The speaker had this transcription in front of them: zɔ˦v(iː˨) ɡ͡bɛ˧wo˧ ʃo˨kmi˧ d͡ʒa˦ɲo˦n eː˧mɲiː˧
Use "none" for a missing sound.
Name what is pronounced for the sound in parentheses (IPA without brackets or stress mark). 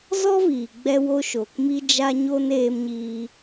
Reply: iː˨